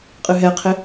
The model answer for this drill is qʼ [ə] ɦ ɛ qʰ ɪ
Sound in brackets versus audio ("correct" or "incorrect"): incorrect